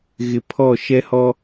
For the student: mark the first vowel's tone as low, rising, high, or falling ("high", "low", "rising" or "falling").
low